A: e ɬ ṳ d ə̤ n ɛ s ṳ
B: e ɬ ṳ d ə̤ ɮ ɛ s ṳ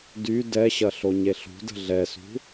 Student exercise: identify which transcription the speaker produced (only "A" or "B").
B